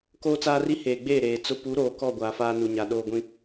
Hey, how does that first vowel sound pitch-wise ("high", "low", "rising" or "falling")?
high